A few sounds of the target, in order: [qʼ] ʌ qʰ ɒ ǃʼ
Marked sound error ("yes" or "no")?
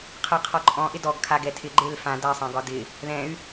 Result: yes